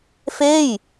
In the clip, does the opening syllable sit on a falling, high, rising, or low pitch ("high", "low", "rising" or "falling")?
falling